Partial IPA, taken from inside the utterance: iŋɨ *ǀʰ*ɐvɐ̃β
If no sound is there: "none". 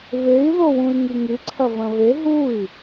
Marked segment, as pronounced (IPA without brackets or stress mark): ǀʰ